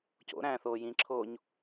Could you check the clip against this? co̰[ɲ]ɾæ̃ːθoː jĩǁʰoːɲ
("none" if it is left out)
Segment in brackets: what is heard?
none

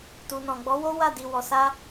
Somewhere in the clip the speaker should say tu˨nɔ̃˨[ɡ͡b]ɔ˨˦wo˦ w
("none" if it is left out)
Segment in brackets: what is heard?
ɡ͡b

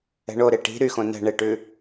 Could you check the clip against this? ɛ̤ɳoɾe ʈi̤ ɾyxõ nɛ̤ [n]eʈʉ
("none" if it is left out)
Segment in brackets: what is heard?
ɳ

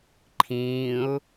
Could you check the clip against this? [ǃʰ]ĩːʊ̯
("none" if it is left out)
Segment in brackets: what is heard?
ǃʰ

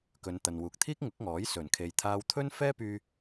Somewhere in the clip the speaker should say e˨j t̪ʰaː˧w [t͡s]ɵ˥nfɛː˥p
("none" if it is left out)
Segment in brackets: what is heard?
t̪ʰ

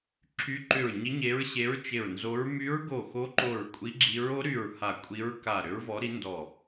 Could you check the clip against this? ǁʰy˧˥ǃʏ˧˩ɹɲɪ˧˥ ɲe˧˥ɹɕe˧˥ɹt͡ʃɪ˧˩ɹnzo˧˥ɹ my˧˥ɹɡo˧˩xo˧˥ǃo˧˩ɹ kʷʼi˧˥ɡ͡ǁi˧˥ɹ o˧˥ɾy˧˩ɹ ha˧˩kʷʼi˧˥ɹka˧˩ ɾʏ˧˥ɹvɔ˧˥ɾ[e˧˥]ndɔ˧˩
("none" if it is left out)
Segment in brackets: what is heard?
i˧˥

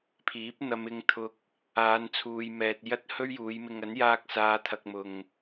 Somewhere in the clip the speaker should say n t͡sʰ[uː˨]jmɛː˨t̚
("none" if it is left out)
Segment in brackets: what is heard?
uː˨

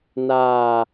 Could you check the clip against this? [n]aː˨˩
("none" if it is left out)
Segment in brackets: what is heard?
n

